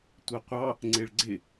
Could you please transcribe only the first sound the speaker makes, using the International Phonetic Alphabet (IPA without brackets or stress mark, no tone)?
tʷ